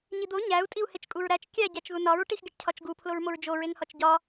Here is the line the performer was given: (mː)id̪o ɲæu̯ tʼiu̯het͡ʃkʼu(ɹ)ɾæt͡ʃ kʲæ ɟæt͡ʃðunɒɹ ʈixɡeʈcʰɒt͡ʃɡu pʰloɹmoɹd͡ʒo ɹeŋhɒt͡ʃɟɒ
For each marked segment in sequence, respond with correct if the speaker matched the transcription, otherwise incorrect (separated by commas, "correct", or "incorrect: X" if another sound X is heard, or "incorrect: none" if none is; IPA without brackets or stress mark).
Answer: incorrect: ɲ, correct